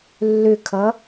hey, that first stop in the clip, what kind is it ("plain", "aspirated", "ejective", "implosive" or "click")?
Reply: aspirated